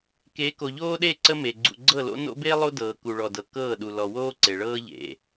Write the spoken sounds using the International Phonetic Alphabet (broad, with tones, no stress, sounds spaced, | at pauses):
k e˨˦ k o˨ ʎ oː˦ ɗ e˦˨ ǀ ə˦ m e˨ ɡ͡ǀ ṵ˨ ɡ͡ǀ ɤ˦˨ l o̰˦ n o̰˦ b eː˦ lˠ o˦ d ɤː˨ k u˨ ɭ ɔ˨ d ɤ˨ k ɤː˦˨ ɗ u˨ l ɔ˨ w oː˦ ǀ e˨ ɭ ɤː˦ ʎ ḛ˨